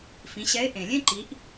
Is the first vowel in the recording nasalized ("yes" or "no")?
yes